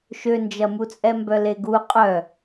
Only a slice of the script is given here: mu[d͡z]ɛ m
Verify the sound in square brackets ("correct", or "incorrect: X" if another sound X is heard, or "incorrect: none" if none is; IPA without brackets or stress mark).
incorrect: t͡sʼ